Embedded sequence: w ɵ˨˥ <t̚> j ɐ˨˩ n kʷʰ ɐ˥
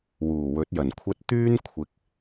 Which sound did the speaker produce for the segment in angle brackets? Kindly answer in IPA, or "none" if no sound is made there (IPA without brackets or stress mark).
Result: t̚